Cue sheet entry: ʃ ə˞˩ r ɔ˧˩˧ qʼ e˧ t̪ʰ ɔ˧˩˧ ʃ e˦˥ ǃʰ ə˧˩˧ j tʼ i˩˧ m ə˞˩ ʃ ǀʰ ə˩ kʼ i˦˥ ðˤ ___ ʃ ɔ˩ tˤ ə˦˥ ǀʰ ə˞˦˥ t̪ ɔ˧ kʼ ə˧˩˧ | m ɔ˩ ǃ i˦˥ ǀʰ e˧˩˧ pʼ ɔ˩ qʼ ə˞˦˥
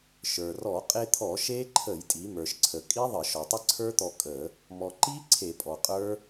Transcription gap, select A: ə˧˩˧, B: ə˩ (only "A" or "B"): A